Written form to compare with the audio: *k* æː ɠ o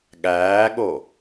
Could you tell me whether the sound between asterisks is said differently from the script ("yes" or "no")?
yes